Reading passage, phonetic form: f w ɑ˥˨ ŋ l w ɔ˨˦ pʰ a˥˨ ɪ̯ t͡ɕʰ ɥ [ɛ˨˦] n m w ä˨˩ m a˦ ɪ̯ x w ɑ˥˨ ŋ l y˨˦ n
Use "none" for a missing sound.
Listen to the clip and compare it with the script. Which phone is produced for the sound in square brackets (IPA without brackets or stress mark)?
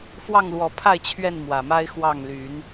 ɛ˥˨